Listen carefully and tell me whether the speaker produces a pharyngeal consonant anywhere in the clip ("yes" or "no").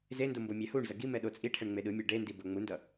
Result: no